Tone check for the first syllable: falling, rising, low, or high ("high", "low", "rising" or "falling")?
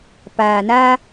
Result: low